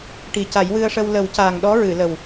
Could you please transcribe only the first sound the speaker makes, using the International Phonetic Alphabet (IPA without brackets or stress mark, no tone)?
ʈ